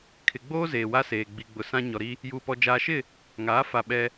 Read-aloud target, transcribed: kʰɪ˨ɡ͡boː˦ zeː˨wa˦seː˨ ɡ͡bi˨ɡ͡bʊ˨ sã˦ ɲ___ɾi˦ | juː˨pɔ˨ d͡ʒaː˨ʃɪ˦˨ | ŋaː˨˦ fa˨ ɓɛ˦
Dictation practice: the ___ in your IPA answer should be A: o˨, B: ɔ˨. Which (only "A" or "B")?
B